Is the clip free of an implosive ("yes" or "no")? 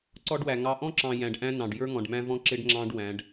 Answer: yes